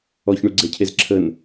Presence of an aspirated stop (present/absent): present